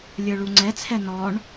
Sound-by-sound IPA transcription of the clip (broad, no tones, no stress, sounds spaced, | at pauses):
lʲ ə˞ ɭ u ŋ͡ǀ ɛ t͡sʰ ɛ n ɔ ɳ